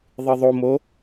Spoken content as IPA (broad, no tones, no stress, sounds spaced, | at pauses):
ðˤ ɨ ðˤ o m o